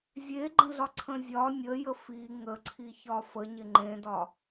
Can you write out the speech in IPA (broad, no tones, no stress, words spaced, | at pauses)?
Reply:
zʲeɡ͡ǃə̃ɮɒǀʰə̃ zʲɒ nʲəjə fi ŋəǀʰi çɒfəɲɪ ŋ͡ǃẽdɒ